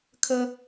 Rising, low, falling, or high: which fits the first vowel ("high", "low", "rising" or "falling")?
high